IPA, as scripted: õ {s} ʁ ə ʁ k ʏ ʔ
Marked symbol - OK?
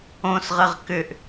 yes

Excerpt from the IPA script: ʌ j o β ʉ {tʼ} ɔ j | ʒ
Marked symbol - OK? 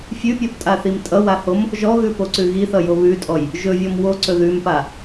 yes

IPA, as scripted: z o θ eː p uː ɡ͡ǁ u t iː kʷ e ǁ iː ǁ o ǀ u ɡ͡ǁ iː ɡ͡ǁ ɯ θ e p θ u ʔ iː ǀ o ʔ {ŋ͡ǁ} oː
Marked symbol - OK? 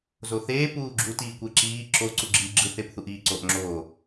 yes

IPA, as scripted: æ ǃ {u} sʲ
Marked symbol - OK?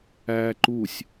yes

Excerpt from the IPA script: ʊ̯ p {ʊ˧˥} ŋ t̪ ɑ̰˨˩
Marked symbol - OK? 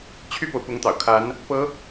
yes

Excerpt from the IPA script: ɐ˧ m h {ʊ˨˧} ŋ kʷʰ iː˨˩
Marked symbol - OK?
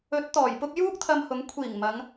yes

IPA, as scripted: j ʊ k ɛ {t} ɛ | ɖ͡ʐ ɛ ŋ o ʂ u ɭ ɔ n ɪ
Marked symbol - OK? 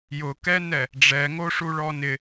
no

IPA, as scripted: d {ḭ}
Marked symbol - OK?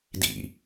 yes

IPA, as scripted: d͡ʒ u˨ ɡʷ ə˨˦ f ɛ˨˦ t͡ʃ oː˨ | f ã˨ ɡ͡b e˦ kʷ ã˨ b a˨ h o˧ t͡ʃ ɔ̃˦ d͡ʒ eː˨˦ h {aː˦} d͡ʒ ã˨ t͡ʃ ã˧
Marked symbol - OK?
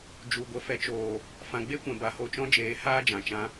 yes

